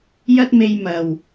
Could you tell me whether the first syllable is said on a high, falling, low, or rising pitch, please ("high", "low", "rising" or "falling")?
high